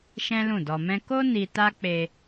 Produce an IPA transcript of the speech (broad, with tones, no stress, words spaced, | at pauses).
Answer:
ʃɛ̃˦lũ˦˨dɔ˧mɛ̃˦ ko˦ ni˧ta˦k͡pe˧